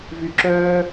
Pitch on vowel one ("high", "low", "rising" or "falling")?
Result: low